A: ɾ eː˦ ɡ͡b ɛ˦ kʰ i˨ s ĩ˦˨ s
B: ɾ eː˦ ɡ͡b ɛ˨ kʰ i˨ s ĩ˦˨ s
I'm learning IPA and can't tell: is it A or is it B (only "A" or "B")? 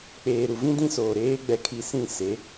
B